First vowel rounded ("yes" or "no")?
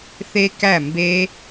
no